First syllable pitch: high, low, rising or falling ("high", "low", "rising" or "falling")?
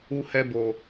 high